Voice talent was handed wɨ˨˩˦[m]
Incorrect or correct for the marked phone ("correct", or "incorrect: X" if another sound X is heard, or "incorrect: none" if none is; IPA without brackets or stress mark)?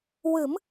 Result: correct